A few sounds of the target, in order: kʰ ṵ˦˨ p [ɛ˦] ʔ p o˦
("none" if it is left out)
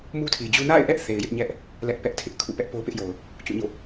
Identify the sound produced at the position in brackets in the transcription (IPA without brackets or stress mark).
ɛ˦